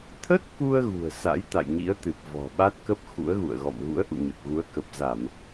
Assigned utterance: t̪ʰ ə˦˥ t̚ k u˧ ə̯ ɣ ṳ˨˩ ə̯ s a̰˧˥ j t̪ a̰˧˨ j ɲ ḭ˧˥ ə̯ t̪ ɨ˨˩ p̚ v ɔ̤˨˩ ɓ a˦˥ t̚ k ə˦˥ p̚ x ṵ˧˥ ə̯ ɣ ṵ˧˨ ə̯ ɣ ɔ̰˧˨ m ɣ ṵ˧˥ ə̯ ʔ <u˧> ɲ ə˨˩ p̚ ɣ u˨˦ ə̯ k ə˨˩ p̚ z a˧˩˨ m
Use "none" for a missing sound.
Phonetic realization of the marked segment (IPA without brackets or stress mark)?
ṵ˧˨